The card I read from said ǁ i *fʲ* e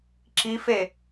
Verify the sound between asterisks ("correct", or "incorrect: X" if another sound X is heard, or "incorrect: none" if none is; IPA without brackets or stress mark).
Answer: incorrect: f